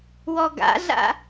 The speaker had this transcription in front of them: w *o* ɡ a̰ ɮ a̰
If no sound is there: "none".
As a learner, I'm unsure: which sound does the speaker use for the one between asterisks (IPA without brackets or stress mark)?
ɔ